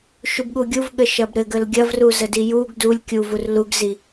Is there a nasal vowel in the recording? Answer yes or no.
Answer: no